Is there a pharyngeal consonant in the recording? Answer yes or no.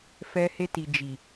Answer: no